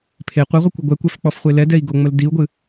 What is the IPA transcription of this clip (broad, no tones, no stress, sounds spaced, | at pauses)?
pʰ e qʷ ɨ ʁʷ i kʷ ə ɡʷ ɛ kʷ ɛ f k͡p ɔ f χʷ e l ɛ d ɛ i̯ ɡ o ŋ͡m ə l d i u̯ ɡʷ ɨ